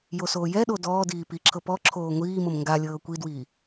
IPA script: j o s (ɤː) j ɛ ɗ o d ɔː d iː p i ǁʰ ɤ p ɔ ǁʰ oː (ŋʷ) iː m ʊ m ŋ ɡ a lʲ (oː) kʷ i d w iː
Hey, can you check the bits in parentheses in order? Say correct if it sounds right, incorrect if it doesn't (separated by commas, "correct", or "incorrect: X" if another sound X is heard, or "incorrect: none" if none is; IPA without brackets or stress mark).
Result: incorrect: oː, correct, incorrect: ɤː